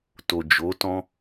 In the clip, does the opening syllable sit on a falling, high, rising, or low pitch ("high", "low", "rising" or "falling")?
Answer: low